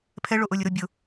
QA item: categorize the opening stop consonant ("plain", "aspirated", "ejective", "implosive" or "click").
aspirated